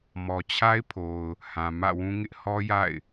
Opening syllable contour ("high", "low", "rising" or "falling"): low